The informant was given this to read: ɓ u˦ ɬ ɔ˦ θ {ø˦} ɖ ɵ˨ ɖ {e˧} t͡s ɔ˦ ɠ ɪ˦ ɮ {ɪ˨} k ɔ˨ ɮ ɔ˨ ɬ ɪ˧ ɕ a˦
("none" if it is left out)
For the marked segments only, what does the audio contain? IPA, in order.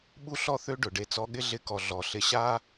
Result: ø˦, e˧, ɪ˧

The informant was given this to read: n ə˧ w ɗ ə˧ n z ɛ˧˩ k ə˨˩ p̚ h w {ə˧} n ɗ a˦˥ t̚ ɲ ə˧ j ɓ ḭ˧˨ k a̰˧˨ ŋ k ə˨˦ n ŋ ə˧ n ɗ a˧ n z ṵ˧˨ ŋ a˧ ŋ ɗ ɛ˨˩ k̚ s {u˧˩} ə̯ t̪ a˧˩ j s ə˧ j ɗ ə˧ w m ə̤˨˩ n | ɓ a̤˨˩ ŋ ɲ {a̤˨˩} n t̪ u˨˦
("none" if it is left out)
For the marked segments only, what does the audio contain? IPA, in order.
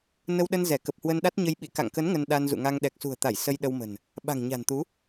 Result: ə˧, ṳ˨˩, a̤˨˩

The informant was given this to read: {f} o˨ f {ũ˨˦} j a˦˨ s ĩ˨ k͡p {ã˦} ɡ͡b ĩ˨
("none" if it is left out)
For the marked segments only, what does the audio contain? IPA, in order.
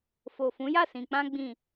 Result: f, ũ˨˦, ã˧

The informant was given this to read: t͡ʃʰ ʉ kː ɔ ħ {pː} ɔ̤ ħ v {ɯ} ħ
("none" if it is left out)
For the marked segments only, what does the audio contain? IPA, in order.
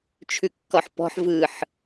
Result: p, ɯ

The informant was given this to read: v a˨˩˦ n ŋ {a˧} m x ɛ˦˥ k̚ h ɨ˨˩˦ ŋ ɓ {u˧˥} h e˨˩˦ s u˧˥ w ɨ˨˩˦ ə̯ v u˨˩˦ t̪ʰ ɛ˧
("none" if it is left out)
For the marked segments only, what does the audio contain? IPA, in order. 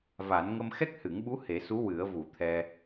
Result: ə˧, u˧˥

